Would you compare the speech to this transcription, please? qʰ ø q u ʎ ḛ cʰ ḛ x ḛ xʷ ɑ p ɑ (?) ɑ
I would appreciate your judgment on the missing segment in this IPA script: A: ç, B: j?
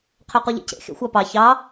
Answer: A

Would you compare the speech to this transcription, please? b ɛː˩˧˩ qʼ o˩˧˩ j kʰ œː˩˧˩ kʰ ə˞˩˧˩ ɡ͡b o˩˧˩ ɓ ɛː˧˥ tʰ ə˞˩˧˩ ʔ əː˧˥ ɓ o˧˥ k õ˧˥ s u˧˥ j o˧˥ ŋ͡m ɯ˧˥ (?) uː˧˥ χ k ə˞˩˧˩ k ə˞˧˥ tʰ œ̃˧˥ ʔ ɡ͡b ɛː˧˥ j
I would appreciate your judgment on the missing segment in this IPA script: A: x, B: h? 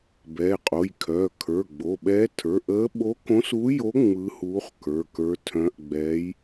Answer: B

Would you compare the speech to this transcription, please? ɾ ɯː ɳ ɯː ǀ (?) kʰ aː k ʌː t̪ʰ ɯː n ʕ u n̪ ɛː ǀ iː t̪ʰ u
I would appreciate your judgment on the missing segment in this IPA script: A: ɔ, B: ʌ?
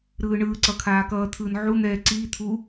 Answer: B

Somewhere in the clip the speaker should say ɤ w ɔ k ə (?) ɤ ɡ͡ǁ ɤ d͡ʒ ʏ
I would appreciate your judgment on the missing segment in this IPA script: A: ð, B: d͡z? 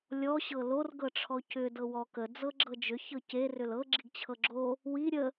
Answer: B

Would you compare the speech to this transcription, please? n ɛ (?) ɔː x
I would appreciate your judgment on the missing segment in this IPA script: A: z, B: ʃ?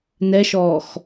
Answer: B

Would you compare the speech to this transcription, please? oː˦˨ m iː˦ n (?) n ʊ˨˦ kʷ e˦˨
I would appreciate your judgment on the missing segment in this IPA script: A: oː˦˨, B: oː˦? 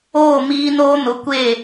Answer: B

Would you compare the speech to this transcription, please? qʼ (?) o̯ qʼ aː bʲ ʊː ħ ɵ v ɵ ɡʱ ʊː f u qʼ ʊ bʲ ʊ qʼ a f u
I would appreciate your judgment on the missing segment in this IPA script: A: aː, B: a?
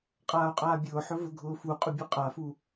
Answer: A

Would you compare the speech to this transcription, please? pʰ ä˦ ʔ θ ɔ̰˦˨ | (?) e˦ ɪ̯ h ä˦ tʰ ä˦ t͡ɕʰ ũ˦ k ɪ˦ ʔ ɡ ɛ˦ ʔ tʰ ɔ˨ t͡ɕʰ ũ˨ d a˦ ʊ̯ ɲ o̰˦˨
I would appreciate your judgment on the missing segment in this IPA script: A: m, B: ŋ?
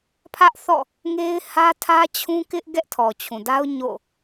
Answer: B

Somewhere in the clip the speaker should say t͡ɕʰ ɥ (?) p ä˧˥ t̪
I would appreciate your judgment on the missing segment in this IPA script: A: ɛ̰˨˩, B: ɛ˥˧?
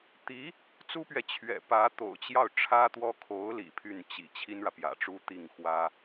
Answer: A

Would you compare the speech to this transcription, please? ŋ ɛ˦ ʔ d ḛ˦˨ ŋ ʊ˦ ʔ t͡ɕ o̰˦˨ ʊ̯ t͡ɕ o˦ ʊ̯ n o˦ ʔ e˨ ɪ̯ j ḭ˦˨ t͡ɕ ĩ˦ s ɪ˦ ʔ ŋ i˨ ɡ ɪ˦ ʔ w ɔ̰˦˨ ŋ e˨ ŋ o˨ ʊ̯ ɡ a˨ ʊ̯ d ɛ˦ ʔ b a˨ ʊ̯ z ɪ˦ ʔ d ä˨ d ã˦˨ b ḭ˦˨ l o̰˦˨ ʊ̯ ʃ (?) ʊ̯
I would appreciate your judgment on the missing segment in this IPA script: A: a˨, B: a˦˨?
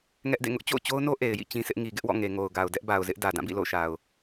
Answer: A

